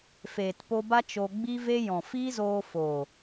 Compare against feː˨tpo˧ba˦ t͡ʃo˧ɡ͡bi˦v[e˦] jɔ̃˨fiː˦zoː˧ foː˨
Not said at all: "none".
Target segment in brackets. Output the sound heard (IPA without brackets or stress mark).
e˦